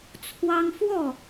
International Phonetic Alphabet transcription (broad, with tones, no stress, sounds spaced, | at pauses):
t͡sʰ w ɑ˦ ŋ f w ɔ˥˨